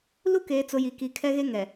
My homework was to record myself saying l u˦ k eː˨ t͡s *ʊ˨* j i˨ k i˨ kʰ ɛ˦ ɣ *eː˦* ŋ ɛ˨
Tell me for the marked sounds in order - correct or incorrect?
correct, incorrect: e˦

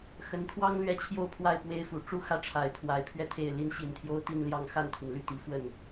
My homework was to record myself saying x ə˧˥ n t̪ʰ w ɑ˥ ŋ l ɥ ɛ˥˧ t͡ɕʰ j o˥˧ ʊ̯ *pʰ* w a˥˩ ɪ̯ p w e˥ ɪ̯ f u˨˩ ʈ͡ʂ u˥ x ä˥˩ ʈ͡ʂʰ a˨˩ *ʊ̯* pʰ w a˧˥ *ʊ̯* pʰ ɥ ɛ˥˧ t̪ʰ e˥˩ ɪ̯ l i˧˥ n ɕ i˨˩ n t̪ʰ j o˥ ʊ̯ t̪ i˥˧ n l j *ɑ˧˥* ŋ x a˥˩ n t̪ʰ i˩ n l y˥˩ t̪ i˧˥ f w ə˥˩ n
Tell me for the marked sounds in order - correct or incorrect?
correct, incorrect: ɪ̯, incorrect: ɪ̯, incorrect: ɑ˥˧

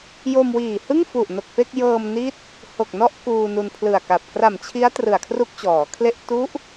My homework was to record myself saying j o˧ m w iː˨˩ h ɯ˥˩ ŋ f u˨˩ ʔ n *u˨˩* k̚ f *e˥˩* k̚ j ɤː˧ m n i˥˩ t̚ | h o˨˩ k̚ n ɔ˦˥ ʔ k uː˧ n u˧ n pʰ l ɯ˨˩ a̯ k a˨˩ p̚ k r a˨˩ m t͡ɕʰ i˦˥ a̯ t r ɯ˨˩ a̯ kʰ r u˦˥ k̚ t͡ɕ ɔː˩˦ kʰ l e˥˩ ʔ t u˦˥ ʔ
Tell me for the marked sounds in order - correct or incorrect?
incorrect: o˨˩, correct

